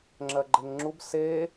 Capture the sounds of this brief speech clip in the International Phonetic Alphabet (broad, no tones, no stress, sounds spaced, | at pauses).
ŋ͡ǁ ɜ ɡ͡ǃ e ŋ ŋ͡ǁ u b s e